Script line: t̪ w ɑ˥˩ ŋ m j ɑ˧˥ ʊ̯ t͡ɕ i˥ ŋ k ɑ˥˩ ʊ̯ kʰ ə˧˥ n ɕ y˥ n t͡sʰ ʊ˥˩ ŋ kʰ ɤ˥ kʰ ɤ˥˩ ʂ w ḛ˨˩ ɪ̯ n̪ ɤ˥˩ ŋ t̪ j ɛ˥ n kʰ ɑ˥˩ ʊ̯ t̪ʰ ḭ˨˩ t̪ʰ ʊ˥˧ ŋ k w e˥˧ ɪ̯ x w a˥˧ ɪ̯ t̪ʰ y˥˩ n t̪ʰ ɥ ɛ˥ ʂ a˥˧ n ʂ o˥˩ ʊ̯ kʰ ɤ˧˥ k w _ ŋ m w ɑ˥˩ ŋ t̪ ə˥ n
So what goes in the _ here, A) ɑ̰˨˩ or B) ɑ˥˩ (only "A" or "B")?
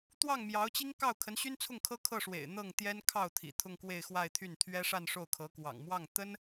A